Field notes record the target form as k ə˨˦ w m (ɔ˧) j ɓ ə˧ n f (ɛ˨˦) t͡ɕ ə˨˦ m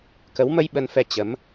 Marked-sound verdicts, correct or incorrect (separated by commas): incorrect, incorrect